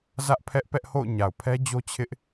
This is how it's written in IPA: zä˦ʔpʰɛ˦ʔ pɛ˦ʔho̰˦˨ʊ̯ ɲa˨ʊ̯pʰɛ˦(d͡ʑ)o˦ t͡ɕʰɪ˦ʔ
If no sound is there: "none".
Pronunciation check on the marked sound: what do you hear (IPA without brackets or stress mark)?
d͡ʑ